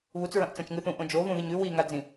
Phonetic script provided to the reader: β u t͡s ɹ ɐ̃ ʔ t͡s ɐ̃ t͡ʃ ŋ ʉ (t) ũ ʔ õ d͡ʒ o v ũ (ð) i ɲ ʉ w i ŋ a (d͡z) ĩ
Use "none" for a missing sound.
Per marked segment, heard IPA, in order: θ, ð, d͡z

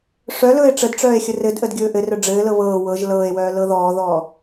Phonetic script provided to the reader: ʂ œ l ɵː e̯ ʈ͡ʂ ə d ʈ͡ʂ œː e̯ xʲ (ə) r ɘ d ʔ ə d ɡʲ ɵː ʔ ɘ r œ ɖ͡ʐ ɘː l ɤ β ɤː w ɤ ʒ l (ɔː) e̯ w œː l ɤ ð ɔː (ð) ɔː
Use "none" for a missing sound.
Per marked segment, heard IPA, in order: ə, ɤː, ð

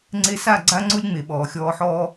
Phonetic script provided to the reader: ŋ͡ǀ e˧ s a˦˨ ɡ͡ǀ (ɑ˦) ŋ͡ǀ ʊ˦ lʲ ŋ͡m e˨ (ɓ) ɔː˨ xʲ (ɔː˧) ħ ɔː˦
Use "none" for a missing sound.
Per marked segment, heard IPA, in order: a˦, ɓ, ɔː˧

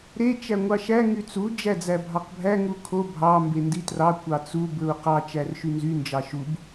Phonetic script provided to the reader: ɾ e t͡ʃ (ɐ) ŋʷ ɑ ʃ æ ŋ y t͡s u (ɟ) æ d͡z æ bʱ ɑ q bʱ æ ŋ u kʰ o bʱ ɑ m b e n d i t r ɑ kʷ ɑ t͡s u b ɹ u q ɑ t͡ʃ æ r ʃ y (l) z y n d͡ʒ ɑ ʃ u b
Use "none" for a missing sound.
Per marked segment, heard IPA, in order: æ, d͡ʒ, n

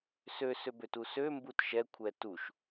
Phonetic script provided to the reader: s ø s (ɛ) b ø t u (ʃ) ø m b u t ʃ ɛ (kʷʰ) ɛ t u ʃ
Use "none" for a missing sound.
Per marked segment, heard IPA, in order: ø, s, kʷʰ

